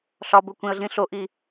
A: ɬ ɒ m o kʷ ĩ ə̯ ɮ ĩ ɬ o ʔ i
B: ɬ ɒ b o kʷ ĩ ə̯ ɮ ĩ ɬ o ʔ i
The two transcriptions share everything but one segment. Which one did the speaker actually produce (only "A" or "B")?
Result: B